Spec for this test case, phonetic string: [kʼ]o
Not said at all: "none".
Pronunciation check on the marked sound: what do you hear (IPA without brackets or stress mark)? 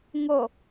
ŋ